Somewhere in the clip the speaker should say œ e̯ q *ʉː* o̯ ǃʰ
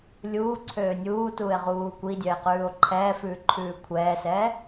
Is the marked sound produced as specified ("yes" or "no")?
yes